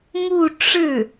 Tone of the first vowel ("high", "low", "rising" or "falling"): falling